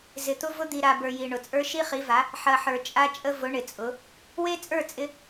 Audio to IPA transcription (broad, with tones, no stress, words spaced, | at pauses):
zɪ˨t̪ʊ˦vʊ˦ d̪i˨ɾa˨ bə˞˨ji˨ɳʊ˨t͡sʼə˞˦ ʃi˦χi˨˦va˨˦ | ħɐ˨ħə˞˨ t͡ʃʼa˦t͡ʃʼə˦ vʊ˨˦ɳɪ˨t͡sʼʊ˨˦ | we˦ t͡sʼə˞˦˨t͡sʼɪ˦